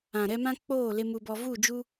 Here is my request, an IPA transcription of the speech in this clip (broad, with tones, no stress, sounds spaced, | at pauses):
ã˨ ɾ ɛ˧ m ã˦ k͡p oː˦˨ l e˧ m u˧ b ɔ˧ v u˦˨ d͡ʒ u˦